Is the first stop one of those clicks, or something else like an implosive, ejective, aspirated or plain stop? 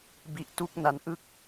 plain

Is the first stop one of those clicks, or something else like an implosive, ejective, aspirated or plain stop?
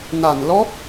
plain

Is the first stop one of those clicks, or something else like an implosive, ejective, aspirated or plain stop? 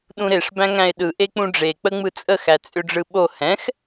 implosive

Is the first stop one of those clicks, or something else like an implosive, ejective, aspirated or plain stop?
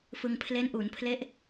aspirated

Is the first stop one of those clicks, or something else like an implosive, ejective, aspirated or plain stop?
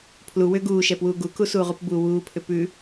aspirated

